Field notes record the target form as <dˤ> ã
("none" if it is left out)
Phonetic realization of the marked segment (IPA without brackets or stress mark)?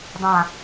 dˤ